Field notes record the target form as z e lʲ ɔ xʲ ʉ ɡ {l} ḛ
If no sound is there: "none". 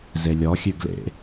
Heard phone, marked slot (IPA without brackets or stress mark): l